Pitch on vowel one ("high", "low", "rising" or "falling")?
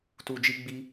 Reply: low